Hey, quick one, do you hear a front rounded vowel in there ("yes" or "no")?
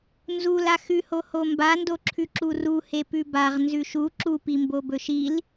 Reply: no